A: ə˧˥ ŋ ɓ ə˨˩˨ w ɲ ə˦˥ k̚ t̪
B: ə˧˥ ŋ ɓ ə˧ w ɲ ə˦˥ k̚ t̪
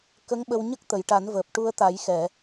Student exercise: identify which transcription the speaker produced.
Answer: B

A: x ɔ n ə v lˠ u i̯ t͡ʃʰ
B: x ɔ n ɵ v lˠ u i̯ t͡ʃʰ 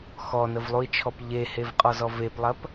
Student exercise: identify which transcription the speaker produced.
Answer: A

